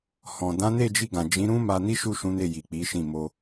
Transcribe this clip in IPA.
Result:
hɔ̃˨ dã˨˦ne˦˨d͡ʒi˧ɡã˨ d͡ʒĩ˨˦ɾũ˦ ma˧ni˦ʃu˦˨ ʃũ˨˦ne˦˨ji˨ k͡pi˨˦ʃĩ˦˨ mo˧

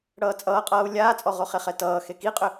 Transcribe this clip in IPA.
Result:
ɽʌːt͡sʼʌːqʼʌːu̯ lʲaːt͡sʼɔʁo χeχɛtʌː xekiqʼʏ

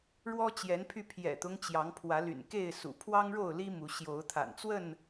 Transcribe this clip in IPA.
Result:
ɻwɔ˦t͡ɕjɛ˨˦npʰy˧ pʰjɛ̰˨˩t̪ʊ˦ŋt͡ɕjɑ˨˦ŋ pʰwä˨˦ly̰˨˩nke˥˨ɪ̯sṵ˨˩ pʰwɑ˦ŋɻo˥˨ʊ̯li˦ mu˨˦ɕjo˨˦ʊ̯t̪ʰa̰˨˩nt͡swə˥˨n

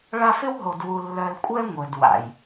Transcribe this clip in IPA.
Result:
ɭa˦f ɪ˦wɦo˨dwu˨ lːœ˨lkʷʼɛ˦ ŋʷœ˨dwa̰˨j

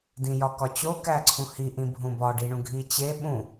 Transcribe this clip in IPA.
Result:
dĩjɒkɒt͡ɕo kæǀʰũhi ʔĩbʱũbɒ ɖiɳũɡʱit͡ɕe ɓũ

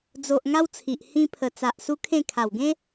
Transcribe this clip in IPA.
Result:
d͡zo˨ʔ ŋa˦wt͡sʰi˨ʔ hĩ˧pʰə˨˩ t͡sa˨ʔ su˦kʰẽ˥˧ kʰa˨˩w ɡẽ˦

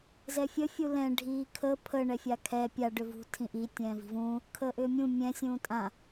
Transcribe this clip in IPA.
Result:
zɛfʲə fʲulɛ̃ ɖʱiːkʰə pʰə ɳɛfʲakʰɛ pʲa ɖʏvṳ tʰĩʔi tʲɛ̃ːvi̤vũː | kʰəːʔʏːmʲũ mʲɛ̃ sʲũːtʼã

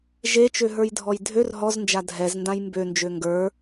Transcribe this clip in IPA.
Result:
ʒet͡ʃøɦə˞jdʱɔj dʱør ɦɔznd͡ʒa dʱɛzndãj mbønd͡ʒø ŋɡə˞

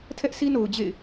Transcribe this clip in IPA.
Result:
tʰɛ˦ʔsi˦no˨ʊ̯ d͡ʑḛ˦˨ɪ̯

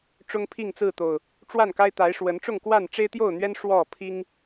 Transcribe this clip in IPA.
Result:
ʈ͡ʂʊ˦ŋpʰi˥˨ŋt͡sɹ̩˥˨t̪o˨˩ʊ̯ | ʈ͡ʂwa˥˨nka˦ɪ̯t̪a˨˦ɪ̯ʂwə˨˦n ʈ͡ʂʊ˥˨ŋkwa˥˨n ʈ͡ʂe˦ɪ̯t̪jo˥˨ʊ̯n̪ɥɛ˦n ʂwɔ˥˨pʰi˦ŋ

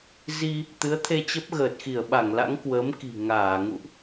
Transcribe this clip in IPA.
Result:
zi˧ | t̪ɨ˨˦ə̯t̪ʰe˧t͡ɕə˦˥p̚ ɣəː˨˩t̚xi˧˩ə̯ɓa˧˩ŋla̰˧˥ŋ kwəː˨˦mki̤˨˩ ŋaː˧˩ŋṵ˧˨ʔ

